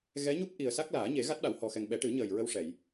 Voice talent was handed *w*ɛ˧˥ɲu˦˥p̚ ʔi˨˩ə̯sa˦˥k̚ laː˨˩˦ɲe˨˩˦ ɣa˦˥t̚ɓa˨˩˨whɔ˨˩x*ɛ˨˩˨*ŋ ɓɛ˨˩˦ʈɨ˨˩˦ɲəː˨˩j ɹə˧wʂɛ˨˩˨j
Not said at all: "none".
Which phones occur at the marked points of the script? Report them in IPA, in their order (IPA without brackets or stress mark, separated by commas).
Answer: ɣ, ɛ˨˩